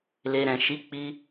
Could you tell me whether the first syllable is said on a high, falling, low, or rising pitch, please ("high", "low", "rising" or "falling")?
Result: low